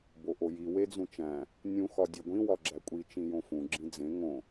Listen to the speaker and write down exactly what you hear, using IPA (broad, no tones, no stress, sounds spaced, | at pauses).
b o ʔ o j i w e d͡z ũ t͡ʃ æ̃ | nʲ ũ x ɒ dʲ e ɡʷ ĩ w ɒ ɡ͡ǁ æ kʷʼ i t͡ʃ ĩ j õ f ũ ɡ͡ǁ ĩ d͡z ẽ ŋ õ